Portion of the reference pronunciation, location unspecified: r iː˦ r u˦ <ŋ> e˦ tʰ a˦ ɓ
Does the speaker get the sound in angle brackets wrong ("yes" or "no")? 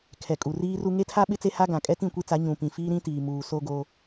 no